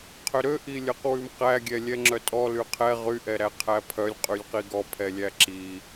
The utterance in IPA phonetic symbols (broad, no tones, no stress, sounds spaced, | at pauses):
qʰ ø ɾ ø ʔ i lʲ œ q w ʉ m q æ ɡʲ ɛ lʲ ɛ ŋ͡ǁ œ tʼ ɔ l y qʰ ɛ ʁ y ʔ ɛ ɾ æ qʰ æ pʰ œ lʲ qʼ y lʲ q i ɡ ɔ pʰ ɛ lʲ æ ǁ i